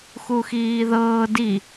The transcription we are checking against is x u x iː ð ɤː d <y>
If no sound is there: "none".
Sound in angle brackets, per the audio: i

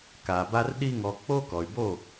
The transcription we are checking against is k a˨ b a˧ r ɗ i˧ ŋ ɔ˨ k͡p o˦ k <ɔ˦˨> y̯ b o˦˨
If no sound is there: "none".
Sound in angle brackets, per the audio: ɔ˨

